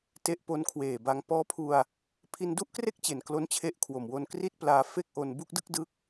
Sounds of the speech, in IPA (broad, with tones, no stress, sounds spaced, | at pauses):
t e˦˥ ʔ p o˦˥ n kʰ w eː˨˩ b a˧ ŋ p ɔː˦˥ pʰ u˧ a̯ | pʰ i˧ n d u˥˩ ʔ k r e˥˩ k̚ t͡ɕ e˨˩ n k l o˦˥ n t͡ɕʰ e˦˥ ʔ kʰ w o˨˩ m w o˧ n k r i˥˩ t̚ p l aː˧ f e˥˩ k̚ ʔ o˧ n b u˥˩ k̚ d ɯ˥˩ k̚ d ɯ˦˥ k̚